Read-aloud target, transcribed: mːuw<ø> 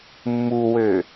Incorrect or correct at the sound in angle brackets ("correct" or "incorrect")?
correct